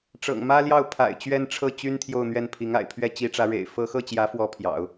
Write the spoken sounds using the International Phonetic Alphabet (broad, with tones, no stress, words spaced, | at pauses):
ʈ͡ʂɤ̰˨˩ŋmä˥ljɑ˥˩ʊ̯ pʰa̰˨˩ɪ̯t͡ɕɥɛ˥nʈ͡ʂʰɤ˥˩ t͡ɕy˥n t̪ʰjo˥˧ʊ̯n̪ɥɛ˥˩n pʰi˧˥ŋa̰˨˩ɪ̯pʰɥɛ˥ t͡ɕi˧˥ʈ͡ʂä˧˥ ɻḛ˨˩ɪ̯fɤ˥ xɤ˥˩t͡ɕjä˧˥fwɔ˧˥ pʰjɑ̰˨˩˦ʊ̯